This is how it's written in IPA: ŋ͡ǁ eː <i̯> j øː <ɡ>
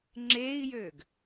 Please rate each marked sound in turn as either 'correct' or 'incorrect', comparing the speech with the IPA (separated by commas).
correct, correct